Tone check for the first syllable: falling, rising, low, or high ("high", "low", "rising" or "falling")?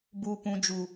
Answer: high